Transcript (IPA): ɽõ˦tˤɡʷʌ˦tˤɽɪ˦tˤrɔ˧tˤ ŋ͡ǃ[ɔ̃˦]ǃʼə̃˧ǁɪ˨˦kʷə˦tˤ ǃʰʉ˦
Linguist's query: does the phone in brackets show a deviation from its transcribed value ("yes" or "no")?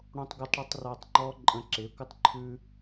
yes